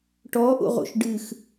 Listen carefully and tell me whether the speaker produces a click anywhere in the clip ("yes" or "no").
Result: no